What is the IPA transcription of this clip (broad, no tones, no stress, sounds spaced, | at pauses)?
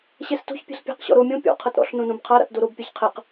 ɕ ɛ s t o̤ ç pʲ ɛ̤ ɬ pʲ a̤ q ɕ ɔ̰ ɾ o mʲ õ pʲ ɔ̰ qʰ ɤ t ɾ ɔ̰ ɬ n õ n õ b qʰ a ɾ a̰ t d o ɾ o b pʲ a ç qʰ ɛ q